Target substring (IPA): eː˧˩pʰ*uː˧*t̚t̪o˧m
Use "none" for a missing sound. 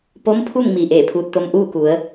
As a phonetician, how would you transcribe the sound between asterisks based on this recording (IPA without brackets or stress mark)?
uː˧